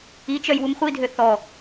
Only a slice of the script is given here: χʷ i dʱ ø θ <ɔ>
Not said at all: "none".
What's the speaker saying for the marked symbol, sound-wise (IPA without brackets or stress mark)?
ɔ